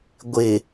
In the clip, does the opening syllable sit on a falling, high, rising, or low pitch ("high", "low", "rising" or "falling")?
low